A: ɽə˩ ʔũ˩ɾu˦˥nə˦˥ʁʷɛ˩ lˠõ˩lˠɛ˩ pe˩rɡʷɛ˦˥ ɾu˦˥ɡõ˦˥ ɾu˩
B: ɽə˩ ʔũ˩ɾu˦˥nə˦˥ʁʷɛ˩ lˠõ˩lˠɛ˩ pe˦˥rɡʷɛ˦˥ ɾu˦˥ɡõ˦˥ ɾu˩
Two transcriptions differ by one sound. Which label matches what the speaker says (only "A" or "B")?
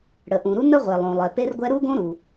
B